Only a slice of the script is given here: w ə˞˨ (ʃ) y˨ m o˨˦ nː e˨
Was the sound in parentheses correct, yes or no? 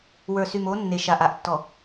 no